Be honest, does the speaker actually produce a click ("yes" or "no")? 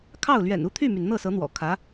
no